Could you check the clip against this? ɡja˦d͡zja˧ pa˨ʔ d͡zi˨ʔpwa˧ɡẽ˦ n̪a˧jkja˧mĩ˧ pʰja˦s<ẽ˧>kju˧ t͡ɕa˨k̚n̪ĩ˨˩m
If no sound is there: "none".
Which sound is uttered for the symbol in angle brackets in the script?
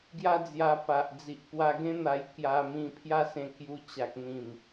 ẽ˧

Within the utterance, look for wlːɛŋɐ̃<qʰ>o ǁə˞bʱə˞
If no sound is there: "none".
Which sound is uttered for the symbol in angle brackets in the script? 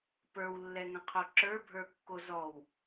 qʰ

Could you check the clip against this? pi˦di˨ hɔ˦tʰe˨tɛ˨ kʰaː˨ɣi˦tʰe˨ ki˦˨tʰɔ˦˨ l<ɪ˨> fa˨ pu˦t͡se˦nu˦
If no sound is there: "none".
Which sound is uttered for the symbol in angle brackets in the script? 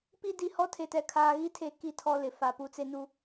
ɪ˨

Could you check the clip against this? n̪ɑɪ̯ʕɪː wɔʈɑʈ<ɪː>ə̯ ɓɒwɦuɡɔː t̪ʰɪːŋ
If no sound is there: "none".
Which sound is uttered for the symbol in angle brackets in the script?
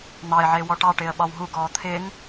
ɪː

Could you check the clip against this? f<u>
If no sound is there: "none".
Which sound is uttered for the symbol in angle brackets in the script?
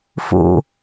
ṵ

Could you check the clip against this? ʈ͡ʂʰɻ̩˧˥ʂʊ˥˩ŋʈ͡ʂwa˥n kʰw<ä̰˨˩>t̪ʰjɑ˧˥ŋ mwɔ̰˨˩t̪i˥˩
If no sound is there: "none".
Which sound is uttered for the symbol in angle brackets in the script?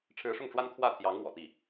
ä˥˩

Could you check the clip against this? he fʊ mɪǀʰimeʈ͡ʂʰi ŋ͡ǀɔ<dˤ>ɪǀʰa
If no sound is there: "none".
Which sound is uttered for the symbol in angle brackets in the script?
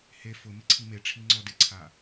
d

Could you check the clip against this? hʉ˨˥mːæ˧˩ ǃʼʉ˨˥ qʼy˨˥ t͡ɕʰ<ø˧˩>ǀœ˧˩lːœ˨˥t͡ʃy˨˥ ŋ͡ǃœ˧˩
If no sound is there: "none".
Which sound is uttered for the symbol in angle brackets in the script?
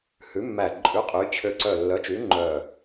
ø˧˩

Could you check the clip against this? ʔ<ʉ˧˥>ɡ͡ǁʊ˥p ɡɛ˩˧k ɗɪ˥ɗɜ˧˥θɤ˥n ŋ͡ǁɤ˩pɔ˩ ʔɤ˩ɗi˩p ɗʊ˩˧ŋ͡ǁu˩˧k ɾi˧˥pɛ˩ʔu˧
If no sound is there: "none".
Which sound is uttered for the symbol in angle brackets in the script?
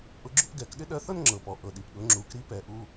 ʊ˧˥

